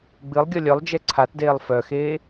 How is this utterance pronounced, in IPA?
ɡ͡b ɨ lˠ ɡʲ ʌ lʲ œ lˠ d͡ʒ ɛ ǀʰ a t d eː lˠ f œ x eː

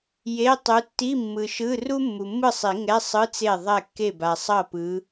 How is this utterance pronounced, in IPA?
j e˧˥˧ tˤ u˨˦ tː i˧˥˧ mː ɯ˨ ʃ ɯ˧˥˧ r u˥ mː u˨ mː ɯ˥˩ sˤ i˨˩˦ ŋ ɛ˧˥˧ sˤ ɯ˧˥˧ t͡s e˥˩ ðˤ ɛ˥˩ kː e˥˩ b a˨ sˤ ʌ˥˩ p ɯ˨˦

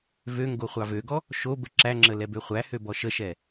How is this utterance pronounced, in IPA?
v ø ŋ ɡ o χʷ ɑ v ø ɡ ɔ | ʃ o b ə ǁ æ ŋ͡ǁ ə l ɛ b ø χʷ æ h ø b ɔ ʃ ə ʃ ɛ

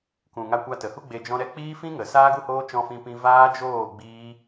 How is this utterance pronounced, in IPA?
k ũ˨ ŋ a˧ kʷ a˧ t ə˨ h u˦ ɡ͡b e˧ d͡ʒ ɔ̃˦ ɾ ɛ˦ k͡p iː˦ f ĩ˦ ŋ ə˨ s aː˦ ɡ u˦ h oː˦ t͡ʃ ɔ̃˦ f ĩ˦ p ĩ˦ v aː˦ d͡ʒ oː˦˨ ɡ͡b iː˦

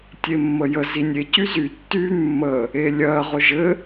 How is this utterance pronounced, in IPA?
tʲ e mː ə j ə z i nʲ e c y z y tː y mː ə | e lʲ ɜ ʁ ʊ ʒ ɘ

